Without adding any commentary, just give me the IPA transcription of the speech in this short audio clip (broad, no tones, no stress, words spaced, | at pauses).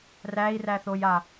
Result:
ræi̯ræθoja